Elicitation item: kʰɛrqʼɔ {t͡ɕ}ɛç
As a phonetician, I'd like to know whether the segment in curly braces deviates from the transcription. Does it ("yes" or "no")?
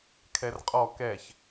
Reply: yes